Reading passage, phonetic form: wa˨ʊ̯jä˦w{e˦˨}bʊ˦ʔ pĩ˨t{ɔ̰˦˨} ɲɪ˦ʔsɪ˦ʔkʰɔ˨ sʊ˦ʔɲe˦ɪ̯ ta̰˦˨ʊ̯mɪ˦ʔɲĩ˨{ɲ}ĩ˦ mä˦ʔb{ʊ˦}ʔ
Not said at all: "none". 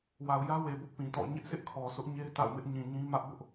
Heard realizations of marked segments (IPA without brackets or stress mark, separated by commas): e˨, ɔ̰˦˨, ɲ, ʊ˦